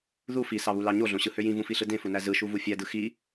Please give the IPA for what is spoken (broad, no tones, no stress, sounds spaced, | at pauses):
ð u f i s ɑ β u l ɑ ɲ o ɮ õ ɕ ɯ h ø j ĩ v ũ f i ɬ ɯ d ẽ f u n æ z ɯ ʃ u v u fʲ æ d ɯ x i